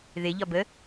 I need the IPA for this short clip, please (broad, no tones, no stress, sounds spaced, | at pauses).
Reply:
ð ɪ ʎ ɒ b ə